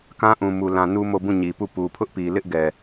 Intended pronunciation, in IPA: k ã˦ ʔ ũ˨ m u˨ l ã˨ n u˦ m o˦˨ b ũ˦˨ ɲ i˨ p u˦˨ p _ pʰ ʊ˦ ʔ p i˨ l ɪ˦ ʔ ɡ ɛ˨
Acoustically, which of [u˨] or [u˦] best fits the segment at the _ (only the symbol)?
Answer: u˨